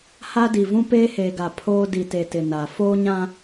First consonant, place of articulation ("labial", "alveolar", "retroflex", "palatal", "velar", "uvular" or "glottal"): glottal